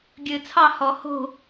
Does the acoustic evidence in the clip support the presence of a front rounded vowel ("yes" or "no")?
no